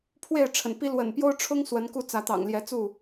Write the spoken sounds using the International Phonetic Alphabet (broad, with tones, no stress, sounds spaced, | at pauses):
pʰ w e˥˨ ɪ̯ ʈ͡ʂʰ ə̰˨˩ n p i˦ l w ə̰˨˩ n p j o˦ ʊ̯ ʈ͡ʂʰ ʊ˦ ŋ s w ə˨˦ n k u˦ t͡s ä˨˦ t̪ ɑ̰˨˩ ŋ l j ɛ˨˦ t͡s u˥˨